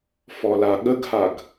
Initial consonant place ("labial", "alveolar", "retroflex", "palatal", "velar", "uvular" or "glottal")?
labial